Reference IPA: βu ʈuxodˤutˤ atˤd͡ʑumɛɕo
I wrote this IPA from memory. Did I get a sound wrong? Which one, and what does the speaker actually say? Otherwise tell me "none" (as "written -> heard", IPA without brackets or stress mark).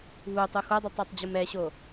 ʈ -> tˤ